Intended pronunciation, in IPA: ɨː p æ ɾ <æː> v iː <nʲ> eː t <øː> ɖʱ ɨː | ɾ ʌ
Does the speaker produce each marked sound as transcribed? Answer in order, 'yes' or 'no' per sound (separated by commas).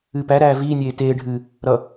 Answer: yes, yes, no